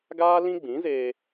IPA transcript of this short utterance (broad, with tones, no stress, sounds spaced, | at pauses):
ɡ aː˦ l ĩ˦ ɡ͡b ĩ˨˦ z eː˧